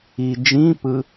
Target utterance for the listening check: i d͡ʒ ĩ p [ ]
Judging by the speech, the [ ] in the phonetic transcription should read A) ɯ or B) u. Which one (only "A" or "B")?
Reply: A